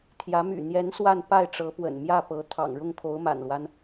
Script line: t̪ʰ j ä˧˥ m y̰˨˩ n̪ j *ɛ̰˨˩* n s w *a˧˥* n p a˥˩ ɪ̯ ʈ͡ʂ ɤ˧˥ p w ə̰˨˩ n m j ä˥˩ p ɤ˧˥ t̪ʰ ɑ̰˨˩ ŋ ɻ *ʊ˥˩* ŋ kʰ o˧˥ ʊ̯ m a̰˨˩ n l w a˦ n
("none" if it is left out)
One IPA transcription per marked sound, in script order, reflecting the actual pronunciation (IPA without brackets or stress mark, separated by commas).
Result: ɛ˧˥, a˥˧, ʊ˥˩